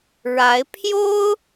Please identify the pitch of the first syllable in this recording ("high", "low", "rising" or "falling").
rising